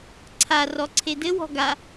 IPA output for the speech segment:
ǀʰ a r ɔ ǀʰ e d ɘ w ɔ̤ ɡ a

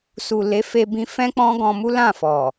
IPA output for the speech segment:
s u˨ l e˨˦ f e˧ b ĩ˧ f ɛ̃˦ k͡p ɔ̃˦ ɡ ɔ̃˧ m u˦ l ã˦˨ f ɔ˨

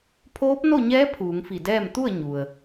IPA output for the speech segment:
pʰ oː˧˥ p̚ n o˥˨ ɲ ɛː˧˥ pʰ uː˩˧ ŋ f i˧˩ d ɛː˥˨ m t̪ u˥˨ ə̯ ɲ u˩ ə̯

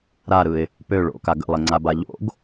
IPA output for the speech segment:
ɾ a ɾ ɯ ɪ̯ | p ø ɭ o̰ k a ɡ ə̰ lˠ e ŋ͡ǀ a b a ʎ o̰ ɡ

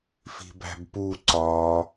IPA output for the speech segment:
f i̤ b æ̤ b p u ǀ ɒ

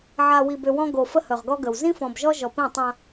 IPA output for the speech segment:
ʕ a˨ w i˨ b ʏ˨ w ɔ̃˦ ɡ o˨ f ə˦ h ɵ˨ ʁ ɡ ɔ˦ ɡ ə˨ w z ĩ˦ f ɔ̃˨ b ʒ ɔ˦ ʒ ɔ˨ p ĩ˦˨ tˤ ã˦

